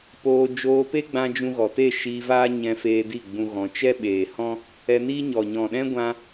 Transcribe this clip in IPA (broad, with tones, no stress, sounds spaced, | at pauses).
p oː˧ d͡ʒ oː˧ p e˦ ɡ͡b ã˧ d͡ʒ ũ˧ ɣ ɔ˨ t e˦˨ ʃ iː˧ v aː˦ ɲ ɛ̃˧ f eː˧ d i˦˨ ɡ͡b ũ˧ ɣ ɔ̃˧ t͡ʃ ɛ˦ ɓ eː˨ h ɔ̃˦ | ɛ˧ n iː˦ ɲ ɔ˨ ɲ ɔ̃˨ ɗ ɛ̃˦ ɡʷ ã˧